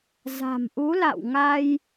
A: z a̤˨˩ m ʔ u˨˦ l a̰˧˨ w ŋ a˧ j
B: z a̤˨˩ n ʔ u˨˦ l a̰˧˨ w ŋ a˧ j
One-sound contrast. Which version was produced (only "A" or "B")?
A